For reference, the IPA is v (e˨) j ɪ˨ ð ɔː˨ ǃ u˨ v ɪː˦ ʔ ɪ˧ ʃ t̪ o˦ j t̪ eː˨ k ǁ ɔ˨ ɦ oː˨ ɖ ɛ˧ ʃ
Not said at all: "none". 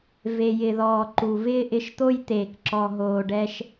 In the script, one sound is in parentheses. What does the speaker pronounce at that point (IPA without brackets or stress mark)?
e˨